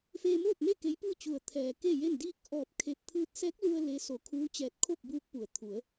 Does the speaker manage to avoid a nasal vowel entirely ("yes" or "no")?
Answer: yes